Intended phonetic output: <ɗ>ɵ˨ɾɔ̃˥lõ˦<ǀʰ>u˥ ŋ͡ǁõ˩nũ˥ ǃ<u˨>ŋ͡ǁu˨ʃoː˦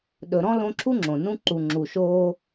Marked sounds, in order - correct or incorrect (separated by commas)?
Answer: correct, incorrect, correct